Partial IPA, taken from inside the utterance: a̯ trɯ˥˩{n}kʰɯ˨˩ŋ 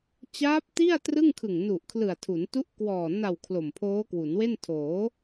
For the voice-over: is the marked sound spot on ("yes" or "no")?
no